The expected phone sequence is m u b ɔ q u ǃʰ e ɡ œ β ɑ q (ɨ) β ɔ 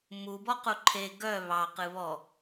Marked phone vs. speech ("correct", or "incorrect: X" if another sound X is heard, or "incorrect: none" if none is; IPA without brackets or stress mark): correct